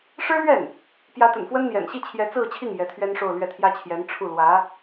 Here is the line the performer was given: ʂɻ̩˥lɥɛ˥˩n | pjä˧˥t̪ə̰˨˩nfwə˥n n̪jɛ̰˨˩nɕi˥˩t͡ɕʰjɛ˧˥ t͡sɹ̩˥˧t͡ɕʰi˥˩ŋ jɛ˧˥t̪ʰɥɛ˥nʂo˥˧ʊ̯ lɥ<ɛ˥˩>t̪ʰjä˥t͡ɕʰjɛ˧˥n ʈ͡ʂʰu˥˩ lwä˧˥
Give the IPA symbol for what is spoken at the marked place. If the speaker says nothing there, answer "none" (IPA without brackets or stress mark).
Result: ɛ˥˩